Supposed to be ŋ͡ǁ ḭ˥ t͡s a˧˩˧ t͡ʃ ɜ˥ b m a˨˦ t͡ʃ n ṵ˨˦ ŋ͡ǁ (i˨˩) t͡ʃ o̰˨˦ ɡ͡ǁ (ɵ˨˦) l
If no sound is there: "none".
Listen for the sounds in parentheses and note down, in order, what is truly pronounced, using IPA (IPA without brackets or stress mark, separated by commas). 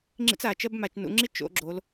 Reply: i˥, o˨˦